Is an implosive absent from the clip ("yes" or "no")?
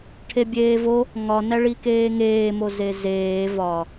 yes